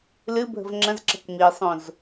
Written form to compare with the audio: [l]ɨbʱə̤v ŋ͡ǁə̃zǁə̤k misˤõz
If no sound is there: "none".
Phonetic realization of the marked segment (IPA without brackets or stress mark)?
l